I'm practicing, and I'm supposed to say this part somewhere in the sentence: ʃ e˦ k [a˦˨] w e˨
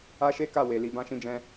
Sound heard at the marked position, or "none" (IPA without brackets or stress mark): a˦˨